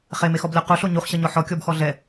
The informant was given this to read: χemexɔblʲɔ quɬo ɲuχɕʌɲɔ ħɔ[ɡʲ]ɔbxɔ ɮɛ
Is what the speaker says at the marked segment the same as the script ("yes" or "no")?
no